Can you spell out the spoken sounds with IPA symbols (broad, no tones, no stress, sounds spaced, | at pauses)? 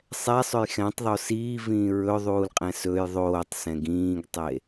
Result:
sˤ ɛ sˤ ɵ j x ɛ̃ tˤ ðˤ o s iː v ĩː ɹ ɵ ðˤ uː l qʼ ɛ̃ s ɵ j ðˤ oː tˤ s ɛ̃ ɡ ĩː ɡ tˤ e